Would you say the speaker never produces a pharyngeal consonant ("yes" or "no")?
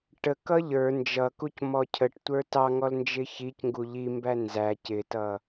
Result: yes